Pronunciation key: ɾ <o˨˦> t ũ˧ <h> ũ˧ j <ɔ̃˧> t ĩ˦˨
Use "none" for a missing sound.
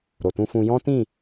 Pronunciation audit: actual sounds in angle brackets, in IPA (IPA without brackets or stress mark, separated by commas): o˨, f, ɔ̃˦